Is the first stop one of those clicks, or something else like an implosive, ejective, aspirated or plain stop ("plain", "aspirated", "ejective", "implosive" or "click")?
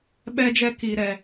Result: implosive